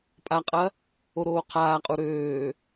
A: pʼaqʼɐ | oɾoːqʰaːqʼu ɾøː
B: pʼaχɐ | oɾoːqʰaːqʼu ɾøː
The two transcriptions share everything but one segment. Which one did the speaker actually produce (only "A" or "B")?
A